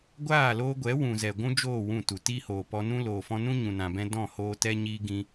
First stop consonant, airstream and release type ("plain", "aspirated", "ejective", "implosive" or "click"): plain